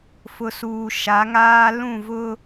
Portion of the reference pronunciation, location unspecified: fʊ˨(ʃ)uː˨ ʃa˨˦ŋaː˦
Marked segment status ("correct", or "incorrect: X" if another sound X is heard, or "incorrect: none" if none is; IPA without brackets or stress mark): incorrect: s